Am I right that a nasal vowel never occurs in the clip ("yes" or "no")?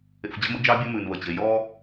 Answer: yes